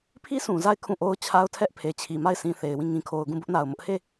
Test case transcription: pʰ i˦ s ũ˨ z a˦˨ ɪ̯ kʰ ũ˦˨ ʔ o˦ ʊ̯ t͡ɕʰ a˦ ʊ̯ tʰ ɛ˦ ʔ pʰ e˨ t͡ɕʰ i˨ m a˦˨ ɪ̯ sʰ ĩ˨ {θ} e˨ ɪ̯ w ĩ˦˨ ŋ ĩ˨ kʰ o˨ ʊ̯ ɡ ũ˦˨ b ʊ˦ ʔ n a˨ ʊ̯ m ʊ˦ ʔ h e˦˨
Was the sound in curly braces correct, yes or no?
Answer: yes